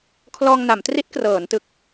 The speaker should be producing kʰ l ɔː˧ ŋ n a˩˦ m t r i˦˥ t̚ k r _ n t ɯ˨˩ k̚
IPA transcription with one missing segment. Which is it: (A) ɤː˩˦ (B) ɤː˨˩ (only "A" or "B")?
A